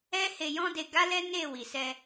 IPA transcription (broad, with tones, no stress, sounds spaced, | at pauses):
ɛ˦ h e˧ j ɔ̃˦ d e˧ ɡ a˦ l ɛ˦ n e˦˨ w i˨ s ɛ˧